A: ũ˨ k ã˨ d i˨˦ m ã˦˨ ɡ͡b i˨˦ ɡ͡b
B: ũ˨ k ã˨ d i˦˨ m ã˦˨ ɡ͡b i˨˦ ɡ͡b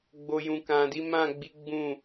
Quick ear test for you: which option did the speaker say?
A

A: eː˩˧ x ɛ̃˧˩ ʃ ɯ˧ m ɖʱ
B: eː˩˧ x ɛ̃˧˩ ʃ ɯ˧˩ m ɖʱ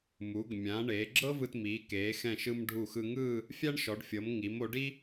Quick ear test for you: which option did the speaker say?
A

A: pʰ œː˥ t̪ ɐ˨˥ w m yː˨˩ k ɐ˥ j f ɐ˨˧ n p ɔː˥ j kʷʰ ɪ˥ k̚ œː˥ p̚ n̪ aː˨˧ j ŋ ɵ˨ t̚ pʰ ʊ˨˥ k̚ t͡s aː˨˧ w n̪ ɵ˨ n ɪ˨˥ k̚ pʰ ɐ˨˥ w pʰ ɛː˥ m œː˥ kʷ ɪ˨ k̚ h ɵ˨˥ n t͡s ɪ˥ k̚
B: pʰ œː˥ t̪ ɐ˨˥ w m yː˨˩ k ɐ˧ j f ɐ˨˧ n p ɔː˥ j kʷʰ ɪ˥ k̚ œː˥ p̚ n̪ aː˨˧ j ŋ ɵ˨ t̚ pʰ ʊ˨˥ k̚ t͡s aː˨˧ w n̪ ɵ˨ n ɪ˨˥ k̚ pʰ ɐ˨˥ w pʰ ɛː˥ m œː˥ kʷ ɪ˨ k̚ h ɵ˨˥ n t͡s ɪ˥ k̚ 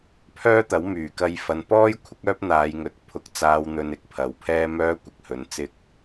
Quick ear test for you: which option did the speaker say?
B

